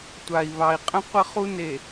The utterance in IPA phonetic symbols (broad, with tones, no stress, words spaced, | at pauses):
tʷa˨i̯βɑ˨i̯qʼə̃˦ qʷə˦χu˦ne˨